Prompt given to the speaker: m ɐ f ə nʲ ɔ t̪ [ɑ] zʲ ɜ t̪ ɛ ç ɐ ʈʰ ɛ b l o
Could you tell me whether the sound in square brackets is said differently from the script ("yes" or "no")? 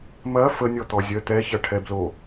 yes